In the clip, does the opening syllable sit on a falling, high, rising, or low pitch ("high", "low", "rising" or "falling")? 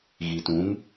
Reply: low